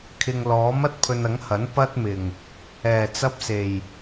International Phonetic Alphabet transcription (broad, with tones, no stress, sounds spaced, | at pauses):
kʰ ɪ˨ ŋ l ɔː˨˥ m ɐ˥ t̚ pʰ ɵ˧ n ɐ˨˥ ŋ h ɐ˨˥ n p ɐ˥ t̚ m ɪ˨˩ ŋ | ɛː˨˩ t͡s ɐ˥ p̚ s e˨˩ j